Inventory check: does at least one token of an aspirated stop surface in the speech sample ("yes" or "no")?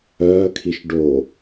yes